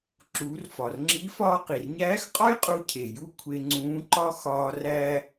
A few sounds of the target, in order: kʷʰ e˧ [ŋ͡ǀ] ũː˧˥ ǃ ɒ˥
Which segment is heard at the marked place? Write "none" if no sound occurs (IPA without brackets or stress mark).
ŋ͡ǀ